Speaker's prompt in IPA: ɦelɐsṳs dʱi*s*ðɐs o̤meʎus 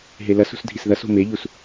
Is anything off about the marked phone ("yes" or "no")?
no